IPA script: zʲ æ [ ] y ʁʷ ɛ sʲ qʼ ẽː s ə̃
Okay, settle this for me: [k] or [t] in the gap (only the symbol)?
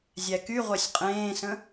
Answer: k